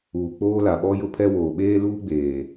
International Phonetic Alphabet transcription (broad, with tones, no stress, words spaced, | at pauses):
uː˨k͡poː˦la˨ ɓɔ˦jʊ˦pʰɛ˦woː˨ ɓeː˦luː˦ɡ͡beː˨